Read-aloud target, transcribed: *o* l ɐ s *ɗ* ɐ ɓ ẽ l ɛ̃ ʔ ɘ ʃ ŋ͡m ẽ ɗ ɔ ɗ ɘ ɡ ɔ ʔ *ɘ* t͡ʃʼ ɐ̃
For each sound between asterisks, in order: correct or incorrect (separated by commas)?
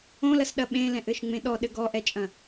incorrect, correct, incorrect